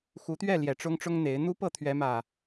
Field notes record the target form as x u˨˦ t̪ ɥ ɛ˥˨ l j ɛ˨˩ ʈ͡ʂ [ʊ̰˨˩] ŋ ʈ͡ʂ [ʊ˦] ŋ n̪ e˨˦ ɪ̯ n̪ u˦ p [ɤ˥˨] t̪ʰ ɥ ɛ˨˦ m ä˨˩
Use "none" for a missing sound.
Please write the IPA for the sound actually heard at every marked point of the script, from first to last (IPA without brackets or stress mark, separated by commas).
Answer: ʊ˦, ʊ˦, ɤ˥˨